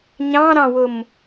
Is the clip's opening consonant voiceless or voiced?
voiced